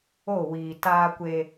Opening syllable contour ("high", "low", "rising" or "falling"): falling